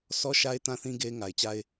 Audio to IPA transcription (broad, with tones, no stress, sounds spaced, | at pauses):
s ɔ˦ ʃ a˦ ɪ̯ t ã˦ θ ĩ˦ ɡ e˦ ɪ̯ ŋ a˨ ɪ̯ t͡ɕ a˦ ɪ̯